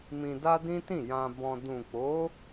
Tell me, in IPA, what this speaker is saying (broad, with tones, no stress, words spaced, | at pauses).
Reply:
mĩ˧da˦dĩ˦tĩ˦˨ jã˧bɔ̃˧ dũ˨k͡po˨˦